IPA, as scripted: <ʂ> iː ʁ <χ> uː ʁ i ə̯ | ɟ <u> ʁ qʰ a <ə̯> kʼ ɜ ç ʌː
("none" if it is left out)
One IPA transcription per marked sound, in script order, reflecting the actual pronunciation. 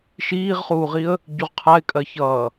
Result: ʃ, χ, u, ɪ̯

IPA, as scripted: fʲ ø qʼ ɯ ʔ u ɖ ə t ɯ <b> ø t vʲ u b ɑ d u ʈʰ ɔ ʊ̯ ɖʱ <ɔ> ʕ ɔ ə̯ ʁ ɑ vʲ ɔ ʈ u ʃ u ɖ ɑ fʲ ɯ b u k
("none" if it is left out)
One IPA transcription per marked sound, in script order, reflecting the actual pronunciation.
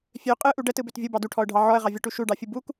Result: b, ɑ

